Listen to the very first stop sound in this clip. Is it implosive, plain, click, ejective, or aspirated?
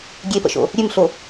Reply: plain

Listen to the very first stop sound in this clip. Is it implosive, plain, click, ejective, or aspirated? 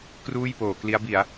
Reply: plain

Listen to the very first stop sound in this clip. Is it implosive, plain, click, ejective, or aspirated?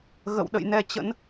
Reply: implosive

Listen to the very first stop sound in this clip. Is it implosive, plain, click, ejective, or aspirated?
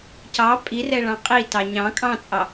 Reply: plain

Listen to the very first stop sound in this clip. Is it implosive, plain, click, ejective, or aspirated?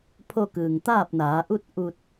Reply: aspirated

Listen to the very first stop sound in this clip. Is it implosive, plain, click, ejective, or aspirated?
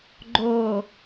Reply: click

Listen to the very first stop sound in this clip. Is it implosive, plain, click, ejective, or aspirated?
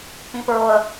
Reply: plain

